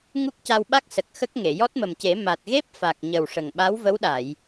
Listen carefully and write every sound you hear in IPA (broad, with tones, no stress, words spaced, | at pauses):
ŋu˦˥k̚ca˧wɓa˦˥k̚ sə˨˩k̚ xə˦˥k̚ŋe˨˩˨ jɔ˦˥t̚mə˨˩mce˨˩˦ ma˨˩t̚ɣe˦˥p̚fa˨˩k̚ɲə˨˩w ʂə˨˩ŋɓa˧˥wvə˧˥wɗa˨˩˨j